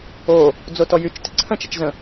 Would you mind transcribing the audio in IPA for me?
o | d͡z o t ɔ j y t͡ʃ t ɪ ǀʰ ə̃ t͡ʃ ɪ t͡ʃ z ə̃

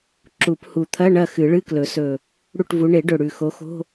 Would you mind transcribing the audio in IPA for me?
ǁ u˨˩˦ p h u˨˩ t̪ʰ ɐ˧˥˧ ɳ ɐ˦˨ x ɨ˨˩˦ ɭ ɨ˧˥˧ k l ɵ˨˩˦ s ɵ˨˩ | ɽ u˦˨ ʈ v u˨˦ ɳ e˨˩˦ ɖ ɵ˨˩ ɽ ʉ˨˩ x o˨˦ x o̤˧˥˧

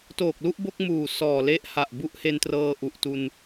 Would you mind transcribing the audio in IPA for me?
t oː˨˩ k̚ l u˥˩ ʔ b o˥˩ k̚ m uː˨˩ s ɔː˨˩ l e˦˥ ʔ h a˨˩ ʔ b u˦˥ ʔ h e˧ n t r ɤː˧ ʔ u˨˩ ʔ t u˧ n

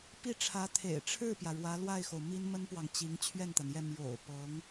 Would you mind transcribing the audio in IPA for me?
p i˥˩ ʈ͡ʂʰ ä˧˥ t̪ʰ ḛ˨˩ ɪ̯ ʈ͡ʂʰ ɻ̩˥˩ p j ä˩ ɻ w ä˧˥ l w a˥˩ ɪ̯ x o˩ ʊ̯ m i˥ n m ə˥ n p w ɑ˨ ŋ t͡ɕ i˧˥ ŋ t͡ɕʰ ɥ ɛ˥˩ n t̪ a˩ n j ɛ˥˩ m j o̰˨˩ ʊ̯ p ɤ˧˥ ŋ

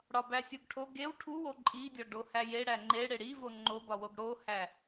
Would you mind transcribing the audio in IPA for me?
ɽ ɒ b æ sʲ u ɡ ʈʰ o ɡ e w ʈʰ u w o ǃʼ i dʲ ɒ ɖ o h æ j e ɽ æ ŋ͡ǃ e ɽ e ɽ i v o ŋ͡ǃ o b ɒ w o ɡ ɽ o h æ

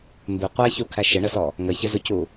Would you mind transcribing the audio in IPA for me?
m b ɪ qʷ æ ç u kʰ æ ʃ ɪ ɳ ə s ɔ | ŋ ə ç ɪ z ʊ c u

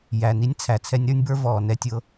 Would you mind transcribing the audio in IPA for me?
j æ˨ n i˦ nʲ t͡sʰ æ˨ t͡sʰ ɛ˦ nʲ ɾ ə˞˦ nʲ b ə˞˦ v ɔː˨ n ɛ˦ tʲ ɤ˦

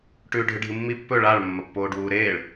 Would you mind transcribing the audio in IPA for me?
ʈ ʉː ɖʱ ɨ ɖʱ ɨ mː i pː ɵ ɭ a ɭ mː ɐ pː oː ɖ w uː ɾ eː ɭ

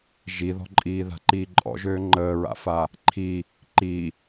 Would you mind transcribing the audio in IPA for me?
ʒ i ð ɔ̤ ǃʼ iː ð a̤ ǃ iː ǃʼ ɔ̰ ʒ øː ŋ͡ǃ əː ɹ a̰ f a | ǃʰ i | ǃ i

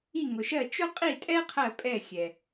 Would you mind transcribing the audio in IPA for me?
i˦˨ ŋ ʊ˨ ʃ ɜ˦˨ t͡ʃ ʊ˦ qʼ i˦˨ tʼ ɛ˦ qʰ ɜ˦˨ pʼ ɛ˦˨ xʲ ɛ˨

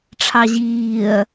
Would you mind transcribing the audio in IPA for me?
ʈ͡ʂʰ ɑ ʑ iː ɐ̯

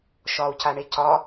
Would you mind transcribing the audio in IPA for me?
ʃ ɒ u̯ c a ɳ e c ɒ

